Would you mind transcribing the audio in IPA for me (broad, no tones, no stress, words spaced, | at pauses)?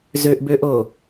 zøʔbøʔo